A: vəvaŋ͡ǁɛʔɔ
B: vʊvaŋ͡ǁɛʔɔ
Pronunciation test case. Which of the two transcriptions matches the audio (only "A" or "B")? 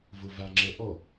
B